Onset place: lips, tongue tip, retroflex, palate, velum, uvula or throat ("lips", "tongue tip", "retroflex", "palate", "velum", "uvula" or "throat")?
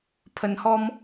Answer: lips